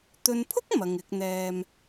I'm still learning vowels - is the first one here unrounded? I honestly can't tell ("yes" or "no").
no